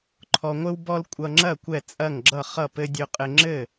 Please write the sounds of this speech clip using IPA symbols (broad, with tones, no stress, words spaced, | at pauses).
ǃʰɔ˧ŋʷɘ˥w bɔ˥l kʷʼʌ˧ŋ͡ǁɐ˥˨ kʷɛ˥˨t͡sʼɐ˥˨ŋ ɡ͡ǁʌ˥˨χʌ˥˨pɘ˥ dʲɵ˧qʼɘ˧ŋ͡ǁɘ˥˨